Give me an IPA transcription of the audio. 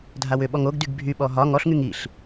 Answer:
dʱawʏɓɔŋ oɡdyɡ bʱyɓɔ ɦɒ ŋɔɬŋyŋ iɬ

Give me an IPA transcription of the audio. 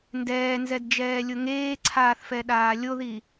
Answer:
ndɛːnzɛdd͡ʒɛːlʲʊ ŋeːǀʰaːθfɛɗaː lʲoði

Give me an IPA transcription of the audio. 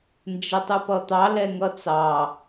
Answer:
nd͡ʒətˤupʌt̪ɑ lɛŋʌt͡sɑ

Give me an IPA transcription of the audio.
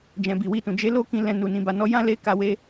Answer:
d͡ʒɛ̃˨bi˨wi˧tũ˨ d͡ʒe˧lo˦ kĩ˧ lɛ̃˧nu˨ nĩ˨ba˨nɔ˧ jã˦le˦ ka˧we˧

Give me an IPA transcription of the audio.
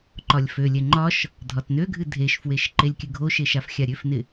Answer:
ǃɒlʲfølʲɛ ŋ͡ǃɒʃ | dʱɒtnøɡʱɨ dʱeʃfweʃ ǃelʲkʲɨɡʱoʃe ʃafxʲaɾʲøfnɪ

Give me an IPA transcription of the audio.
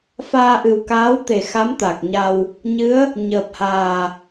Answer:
faː˧ʔɨ˨˩wkaː˧˥wt̪e˨˩ xa˧˥mt̪a˨˩k̚ɲa˧w | ɲɨ˧˥ə̯ | ɲəː˨˩p̚haː˨˩

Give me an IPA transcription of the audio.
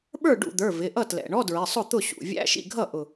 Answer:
ɓə˞˥˩ɖṵ˧˩d̪ə˞˩˧˩ vɪ˩˧˩ ʔʌ˥˩tlɛ̰˩˧˩ɳɔ˧˥˧dɹɪ˩˧˩ sˤʊ˥˩t̪ʊ˥˩ɕṵ˩˧˩ vʲæ̰˧˥˧ʃḭ˥˩ɡʱʌ˥˩ ʔʊ˧˩

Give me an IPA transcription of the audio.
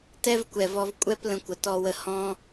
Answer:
tɛ˦vkʷɛ˨vɔ˧v kʷʼɛ˦p lə̃˧kʷə˨tɔ˧wə˧ hɔ̃˦

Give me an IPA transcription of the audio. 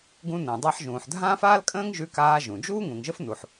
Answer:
ɡũ˧nə̃ː˩dˤa˧ħ ʒũː˩ħdʱãː˥faː˥lkʼə̃ː˥ŋ ʒʉ˧kaː˧ ʒũ˩d͡ʒuː˥ ŋũ˩ŋʒə˥f nu˩ħ

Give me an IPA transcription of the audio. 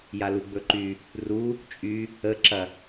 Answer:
jaluɡ͡bɵǃy | ru | t͡ʃʼy | əǁɐ

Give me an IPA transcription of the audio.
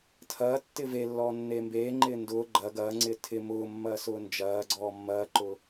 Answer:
tʰɐː tːɪvelːɔː nːeːmbeːŋ͡ǃɪː ndʊː ɡ͡ǃɐ ɡɐːŋ͡ǀɪː tʰɪ mʊːmːɐː sʊːnd͡ʒɐːɡ͡ǀɔː mːɐːǃʊ

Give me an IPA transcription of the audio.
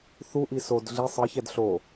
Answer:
θuʔi sod ɮi sˤɯçɛd ɬo

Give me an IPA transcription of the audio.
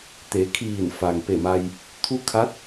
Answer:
t̪e˩˧kʰiː˧˩n fa˩ŋpe˧˩ma˧j | t̪ʰu˧˥kʰa˧˥t̚

